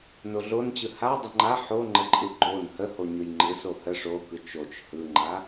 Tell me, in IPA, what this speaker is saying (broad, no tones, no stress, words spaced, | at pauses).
noɮont͡ɕɯ ha dˤɯŋ͡ǃa ħoŋ͡ǃəǃʼɯ ɡ͡ǃon həho ɲɯjŋ͡ǃɯ sohə ʂokɯ t͡ʃot͡ʃ hɯŋ͡ǃa